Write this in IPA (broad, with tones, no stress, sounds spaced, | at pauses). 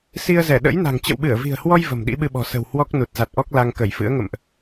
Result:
s i˧ ə̯ z ɛ˧˩ ɗ ə̰˧˥ j n a̤˨˩ ŋ t͡ɕ ə̰˧˨ w ɓ ɨ˧˩ ə̯ v i̤˨˩ ə̯ h w ɔ˧ j v ə̤˨˩ m ɗ ḭ˧˥ ɓ ɨ˧ ɓ ɔ̤˨˩ s ə̤˨˩ w h w ɔ˦˥ k̚ n u˨˩ t̚ z a˨˩ t̚ ʔ ɔ˦˥ k̚ l a˧ ŋ k ə˧˩ j f ɨ̰˧˥ ə̯ ŋ ə̰˧˨ m ʔ